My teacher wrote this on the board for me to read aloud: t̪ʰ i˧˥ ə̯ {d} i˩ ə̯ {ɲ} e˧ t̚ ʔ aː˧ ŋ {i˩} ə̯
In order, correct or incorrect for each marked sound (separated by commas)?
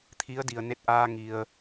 correct, incorrect, correct